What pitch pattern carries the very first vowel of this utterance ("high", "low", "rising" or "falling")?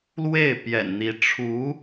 falling